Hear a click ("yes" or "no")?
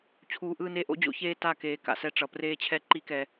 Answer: yes